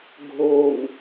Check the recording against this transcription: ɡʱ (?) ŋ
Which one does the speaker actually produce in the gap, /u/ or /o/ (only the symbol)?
o